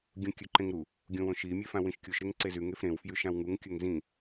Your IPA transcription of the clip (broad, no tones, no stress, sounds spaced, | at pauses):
ɡʲ ũ kʲ ʉ ǃ ẽ ŋ ɾ u | ɡʲ õ w õ ʃ i mʲ e f ã w ĩ ʃ kʲ u ʃ ɾ e ŋ ǀ e z ʉ ŋ e f ɾ ẽ w f j ʉ ʃ ã w ŋ u ŋ kʲ ɵ ŋ z ĩ